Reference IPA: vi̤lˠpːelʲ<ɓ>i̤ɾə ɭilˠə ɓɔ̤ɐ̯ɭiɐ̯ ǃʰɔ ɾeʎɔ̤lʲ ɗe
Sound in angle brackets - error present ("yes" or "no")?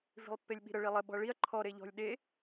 no